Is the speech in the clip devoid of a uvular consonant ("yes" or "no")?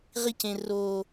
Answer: no